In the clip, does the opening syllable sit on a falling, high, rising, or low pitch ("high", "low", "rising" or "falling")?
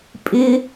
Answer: high